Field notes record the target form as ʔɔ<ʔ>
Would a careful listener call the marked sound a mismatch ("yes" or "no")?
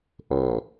yes